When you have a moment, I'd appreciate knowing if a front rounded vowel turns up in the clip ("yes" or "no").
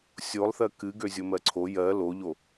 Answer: yes